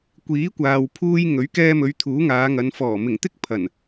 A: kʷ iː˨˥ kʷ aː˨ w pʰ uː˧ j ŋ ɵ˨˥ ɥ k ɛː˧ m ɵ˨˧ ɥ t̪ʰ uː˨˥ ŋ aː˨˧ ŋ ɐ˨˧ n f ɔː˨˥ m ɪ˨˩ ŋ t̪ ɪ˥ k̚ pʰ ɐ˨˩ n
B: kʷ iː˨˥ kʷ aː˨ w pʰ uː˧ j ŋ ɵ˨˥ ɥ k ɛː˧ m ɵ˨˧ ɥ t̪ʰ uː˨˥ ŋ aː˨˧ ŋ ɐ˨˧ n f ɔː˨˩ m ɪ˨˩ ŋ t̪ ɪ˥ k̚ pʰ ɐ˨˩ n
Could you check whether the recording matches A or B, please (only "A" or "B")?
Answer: B